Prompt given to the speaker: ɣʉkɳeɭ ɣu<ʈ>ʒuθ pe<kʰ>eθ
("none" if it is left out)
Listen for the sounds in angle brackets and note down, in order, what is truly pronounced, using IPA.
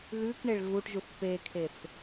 ʈ, kʰ

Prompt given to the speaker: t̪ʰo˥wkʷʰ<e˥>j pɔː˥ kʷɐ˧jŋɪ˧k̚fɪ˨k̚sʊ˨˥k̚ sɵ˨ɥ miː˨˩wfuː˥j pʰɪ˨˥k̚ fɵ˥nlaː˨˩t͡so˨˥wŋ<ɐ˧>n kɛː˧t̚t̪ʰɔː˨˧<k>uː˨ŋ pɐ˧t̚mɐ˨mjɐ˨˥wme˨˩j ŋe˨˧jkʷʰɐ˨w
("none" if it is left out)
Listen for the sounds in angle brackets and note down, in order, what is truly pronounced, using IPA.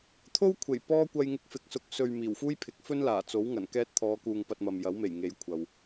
e˨˩, ɐ˨˩, k

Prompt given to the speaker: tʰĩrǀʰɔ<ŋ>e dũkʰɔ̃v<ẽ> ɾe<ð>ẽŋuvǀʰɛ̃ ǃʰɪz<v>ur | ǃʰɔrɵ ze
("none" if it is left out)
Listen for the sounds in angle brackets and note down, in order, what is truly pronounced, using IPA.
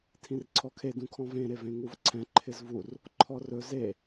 kʰ, ẽ, v, v

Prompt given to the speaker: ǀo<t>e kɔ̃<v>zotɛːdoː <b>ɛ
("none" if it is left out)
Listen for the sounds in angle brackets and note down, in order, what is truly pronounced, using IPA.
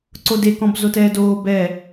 d, b, b

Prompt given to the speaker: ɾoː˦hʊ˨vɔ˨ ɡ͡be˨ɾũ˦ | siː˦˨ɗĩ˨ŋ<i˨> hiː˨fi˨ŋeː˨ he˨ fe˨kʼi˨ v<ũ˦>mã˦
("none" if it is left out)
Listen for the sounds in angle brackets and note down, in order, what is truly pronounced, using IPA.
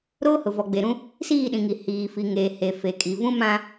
i˨, ũ˦

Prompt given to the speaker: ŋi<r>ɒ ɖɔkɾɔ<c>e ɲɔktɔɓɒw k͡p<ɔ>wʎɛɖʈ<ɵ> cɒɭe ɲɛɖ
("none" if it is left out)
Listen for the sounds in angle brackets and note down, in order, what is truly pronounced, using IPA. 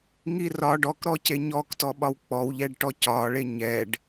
r, c, ɔ, ɔ

